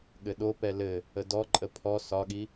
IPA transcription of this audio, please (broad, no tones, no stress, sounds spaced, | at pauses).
ɠ ɘ ɗ o p ɛ l ɘ | ə d ɔ ǃʼ ə pʰ ɔ s ɒ ɠ i